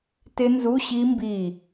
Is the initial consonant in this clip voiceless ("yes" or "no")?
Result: yes